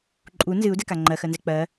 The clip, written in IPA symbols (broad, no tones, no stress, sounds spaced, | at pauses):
ǃʼ u n z ɨ u̯ d ɛ k a ŋ͡ǃ ɜ x ɜ n z ɛ k͡p ɜ